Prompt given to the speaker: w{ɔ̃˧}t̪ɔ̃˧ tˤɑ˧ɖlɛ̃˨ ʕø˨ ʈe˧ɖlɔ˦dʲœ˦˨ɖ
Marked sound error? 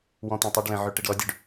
yes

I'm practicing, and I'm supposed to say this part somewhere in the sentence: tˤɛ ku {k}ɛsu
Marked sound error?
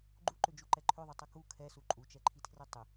yes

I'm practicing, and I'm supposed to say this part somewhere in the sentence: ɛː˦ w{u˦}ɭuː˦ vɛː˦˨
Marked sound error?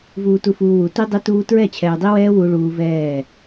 no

